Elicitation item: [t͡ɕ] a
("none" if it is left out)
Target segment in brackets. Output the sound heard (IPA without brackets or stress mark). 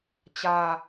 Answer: t͡ɕ